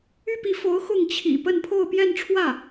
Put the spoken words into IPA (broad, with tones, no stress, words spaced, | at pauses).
y˥pi˧˥fo˧˥ʊ̯ xʊ˥˩ŋt͡ɕʰḭ˨˩ pə˥˧npʰo˥˧ʊ̯ pjɛ˥˧nʈ͡ʂʰwä˥˩